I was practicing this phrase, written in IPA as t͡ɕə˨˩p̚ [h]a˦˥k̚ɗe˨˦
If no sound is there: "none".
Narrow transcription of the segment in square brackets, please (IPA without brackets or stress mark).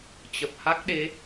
h